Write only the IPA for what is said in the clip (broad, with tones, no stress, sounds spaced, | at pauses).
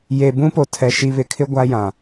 j e˨ b ũ˦ p o˨ tʰ ɛ˨ ʃ i˨ β ɪ˨ kʰ ɪ˦ ɡʷ a˦ j ã˨